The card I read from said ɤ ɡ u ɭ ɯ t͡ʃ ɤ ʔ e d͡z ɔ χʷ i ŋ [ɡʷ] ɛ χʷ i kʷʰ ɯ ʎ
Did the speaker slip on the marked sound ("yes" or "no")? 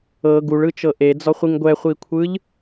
no